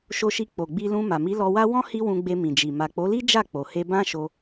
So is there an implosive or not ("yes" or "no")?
no